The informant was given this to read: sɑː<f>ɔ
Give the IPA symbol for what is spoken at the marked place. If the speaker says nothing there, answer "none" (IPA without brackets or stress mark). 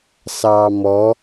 m